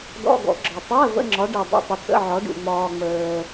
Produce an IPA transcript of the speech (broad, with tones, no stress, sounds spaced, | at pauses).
d ɔ̰˧˥˧ ɡ ɔ̰˨˦ ɡ͡ǁ ɒ˨ tˤ əː˧˥˧ v ə̰˧˥˧ ŋ͡ǁ ɒ˨˦ ɖ e˨ dˤ ə̰˧˥˧ tˤ ə˨˦ t͡s ə̰˧˥˧ ʕ ɒ˨˦ ɖ ṵ˨ ŋ͡m ɒː˨ ŋ͡m əː˨